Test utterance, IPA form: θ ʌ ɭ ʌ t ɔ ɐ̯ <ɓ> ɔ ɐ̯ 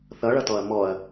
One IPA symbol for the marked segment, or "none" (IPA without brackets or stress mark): m